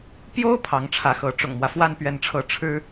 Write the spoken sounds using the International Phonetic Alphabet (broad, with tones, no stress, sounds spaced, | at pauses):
p j o˥ ʊ̯ pʰ ɑ˧˥ ŋ ʈ͡ʂʰ ä˧˥ x ɤ˧˥ ʈ͡ʂ ʊ̰˨˩ ŋ m w ä˦ f w a˥˧ n p ɥ ɛ˥˧ n ʈ͡ʂʰ ɤ˥˩ ʈ͡ʂʰ ɻ̩˥